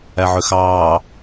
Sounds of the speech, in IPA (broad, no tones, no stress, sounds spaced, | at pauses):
æ ʕ ø x ɑː